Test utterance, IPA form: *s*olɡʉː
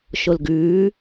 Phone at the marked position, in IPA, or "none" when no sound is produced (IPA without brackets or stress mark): ʃ